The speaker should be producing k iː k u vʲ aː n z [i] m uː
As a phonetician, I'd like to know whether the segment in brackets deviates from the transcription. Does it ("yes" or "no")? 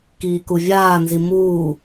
no